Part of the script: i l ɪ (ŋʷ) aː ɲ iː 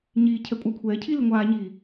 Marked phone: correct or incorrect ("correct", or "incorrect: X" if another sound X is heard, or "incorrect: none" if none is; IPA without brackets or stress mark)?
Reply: correct